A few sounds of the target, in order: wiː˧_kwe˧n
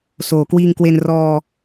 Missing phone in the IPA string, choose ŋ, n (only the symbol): ŋ